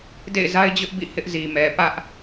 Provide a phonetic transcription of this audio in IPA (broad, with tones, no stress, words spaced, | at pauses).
dḛ˦˨ɪ̯za˦ɪ̯d͡ʑʊ˦ʔbḭ˦˨ hɪ˦ʔzi˨mɛ˨ pä˦ʔ